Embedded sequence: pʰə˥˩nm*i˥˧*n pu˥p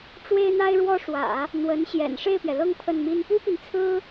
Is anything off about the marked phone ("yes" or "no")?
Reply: yes